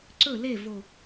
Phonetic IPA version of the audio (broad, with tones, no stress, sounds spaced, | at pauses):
ǀ ɵ˦˨ l e˦˨ v o˨